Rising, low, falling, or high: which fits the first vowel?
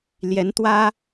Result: rising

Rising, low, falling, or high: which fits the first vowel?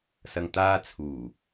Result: low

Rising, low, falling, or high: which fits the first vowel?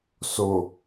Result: low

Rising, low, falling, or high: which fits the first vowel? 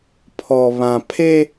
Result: low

